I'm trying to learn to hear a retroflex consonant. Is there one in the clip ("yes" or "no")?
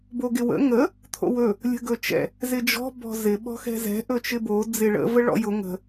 yes